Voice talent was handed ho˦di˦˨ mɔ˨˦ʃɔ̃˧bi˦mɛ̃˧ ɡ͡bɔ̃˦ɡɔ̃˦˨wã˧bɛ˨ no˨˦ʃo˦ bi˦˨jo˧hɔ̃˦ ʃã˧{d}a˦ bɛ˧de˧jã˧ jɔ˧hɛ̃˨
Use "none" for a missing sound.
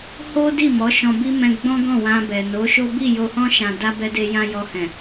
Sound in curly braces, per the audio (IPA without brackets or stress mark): d